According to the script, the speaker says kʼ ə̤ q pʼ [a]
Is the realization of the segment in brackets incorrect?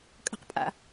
yes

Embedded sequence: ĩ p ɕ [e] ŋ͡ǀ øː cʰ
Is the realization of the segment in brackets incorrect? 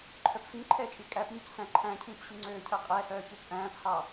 yes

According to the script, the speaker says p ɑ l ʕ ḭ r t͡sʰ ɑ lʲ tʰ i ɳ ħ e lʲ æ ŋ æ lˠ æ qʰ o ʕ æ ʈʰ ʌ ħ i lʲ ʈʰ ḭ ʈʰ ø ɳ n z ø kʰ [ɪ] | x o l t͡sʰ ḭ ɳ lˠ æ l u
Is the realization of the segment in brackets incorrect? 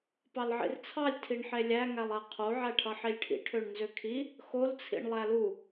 yes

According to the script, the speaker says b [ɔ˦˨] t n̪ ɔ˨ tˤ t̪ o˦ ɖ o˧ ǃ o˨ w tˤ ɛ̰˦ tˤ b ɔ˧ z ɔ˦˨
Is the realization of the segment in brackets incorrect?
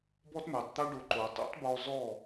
yes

